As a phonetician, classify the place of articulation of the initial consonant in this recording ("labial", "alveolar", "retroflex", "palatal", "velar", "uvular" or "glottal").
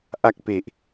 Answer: glottal